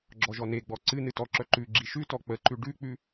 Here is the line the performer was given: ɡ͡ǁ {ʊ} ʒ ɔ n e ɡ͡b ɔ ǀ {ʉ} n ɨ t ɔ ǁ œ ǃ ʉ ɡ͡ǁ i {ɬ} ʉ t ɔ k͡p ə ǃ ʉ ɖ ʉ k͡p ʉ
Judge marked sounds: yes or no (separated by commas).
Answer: no, no, no